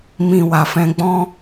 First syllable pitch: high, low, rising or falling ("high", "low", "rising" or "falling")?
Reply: low